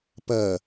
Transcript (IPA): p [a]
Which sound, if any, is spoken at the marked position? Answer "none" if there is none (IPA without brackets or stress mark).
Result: ɐ